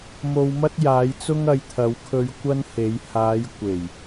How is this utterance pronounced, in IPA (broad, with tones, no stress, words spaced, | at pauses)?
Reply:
mo˧wmɐ˥t̚jaː˨˧jt͡sʊ˥ŋ ɐ˧jt̪ʰɐ˨˧wkʰɵ˧ɥ kʷɐ˥nhe˨˧j haː˨˧jkʷe˨˩j